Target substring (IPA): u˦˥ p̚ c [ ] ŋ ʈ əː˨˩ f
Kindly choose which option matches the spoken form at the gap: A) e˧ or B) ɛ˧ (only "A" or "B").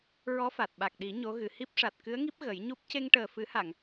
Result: A